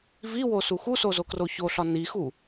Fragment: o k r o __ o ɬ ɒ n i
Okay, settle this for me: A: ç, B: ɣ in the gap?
A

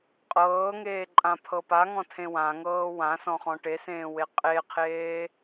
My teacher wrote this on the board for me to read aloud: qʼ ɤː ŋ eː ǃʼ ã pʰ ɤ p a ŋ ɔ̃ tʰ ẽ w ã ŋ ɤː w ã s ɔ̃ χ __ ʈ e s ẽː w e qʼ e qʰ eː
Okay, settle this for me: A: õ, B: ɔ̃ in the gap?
B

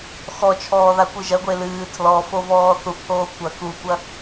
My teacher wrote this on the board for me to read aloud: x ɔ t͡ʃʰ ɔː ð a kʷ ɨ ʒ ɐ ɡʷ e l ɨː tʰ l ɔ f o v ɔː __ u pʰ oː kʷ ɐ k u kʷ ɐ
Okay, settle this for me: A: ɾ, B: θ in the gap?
B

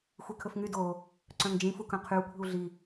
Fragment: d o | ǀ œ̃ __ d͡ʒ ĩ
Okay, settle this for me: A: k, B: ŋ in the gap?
B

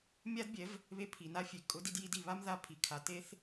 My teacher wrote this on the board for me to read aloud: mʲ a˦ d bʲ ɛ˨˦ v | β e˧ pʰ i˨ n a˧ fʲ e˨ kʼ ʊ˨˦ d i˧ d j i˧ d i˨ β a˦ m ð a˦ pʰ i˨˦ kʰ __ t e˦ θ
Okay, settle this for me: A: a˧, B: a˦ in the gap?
A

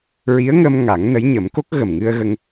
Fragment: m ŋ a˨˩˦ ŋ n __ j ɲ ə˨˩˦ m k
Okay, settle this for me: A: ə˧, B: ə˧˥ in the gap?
B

